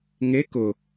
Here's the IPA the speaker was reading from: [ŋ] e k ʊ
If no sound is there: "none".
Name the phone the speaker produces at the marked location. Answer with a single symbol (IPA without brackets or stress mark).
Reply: ŋ